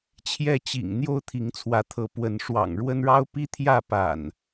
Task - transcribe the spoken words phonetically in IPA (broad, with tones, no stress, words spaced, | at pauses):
t͡ɕʰjɛ˥˨t͡ɕḭ˨˩ŋ n̪jo˦ʊ̯t̪ʰi˨˦ŋt͡sʰwä˨˦t̪ʰɤ˨˦ pwə˨˦n ʂwɑ̰˨˩ŋɻwə˦nɻɑ˦ʊ̯ pi˦t̪ʰjä˥˨ pa̰˨˩n